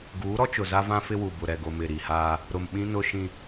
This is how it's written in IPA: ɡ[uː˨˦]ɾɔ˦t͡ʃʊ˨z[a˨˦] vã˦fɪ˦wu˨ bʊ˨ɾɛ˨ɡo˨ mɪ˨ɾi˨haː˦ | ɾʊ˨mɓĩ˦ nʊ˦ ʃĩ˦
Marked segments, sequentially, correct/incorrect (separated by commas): correct, incorrect